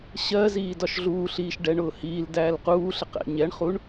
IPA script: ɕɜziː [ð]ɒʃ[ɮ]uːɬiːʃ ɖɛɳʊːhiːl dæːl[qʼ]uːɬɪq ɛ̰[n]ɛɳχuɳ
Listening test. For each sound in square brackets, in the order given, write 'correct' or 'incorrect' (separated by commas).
incorrect, correct, incorrect, incorrect